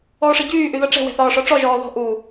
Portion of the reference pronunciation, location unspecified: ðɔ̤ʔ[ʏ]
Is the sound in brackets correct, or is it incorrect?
incorrect